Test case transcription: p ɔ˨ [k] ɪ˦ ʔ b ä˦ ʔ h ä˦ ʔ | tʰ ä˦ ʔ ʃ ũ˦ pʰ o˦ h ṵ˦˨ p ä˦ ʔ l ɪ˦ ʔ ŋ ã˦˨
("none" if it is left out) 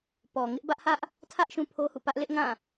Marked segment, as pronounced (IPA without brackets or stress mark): ŋ